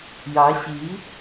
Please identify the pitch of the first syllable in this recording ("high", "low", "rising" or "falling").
rising